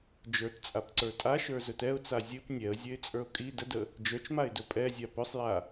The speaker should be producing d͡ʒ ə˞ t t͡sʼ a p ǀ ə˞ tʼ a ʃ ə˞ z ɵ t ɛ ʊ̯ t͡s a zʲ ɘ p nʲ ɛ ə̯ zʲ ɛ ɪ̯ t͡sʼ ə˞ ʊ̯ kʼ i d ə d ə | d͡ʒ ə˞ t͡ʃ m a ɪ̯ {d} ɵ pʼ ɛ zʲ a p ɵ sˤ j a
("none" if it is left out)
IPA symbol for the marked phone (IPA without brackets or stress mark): d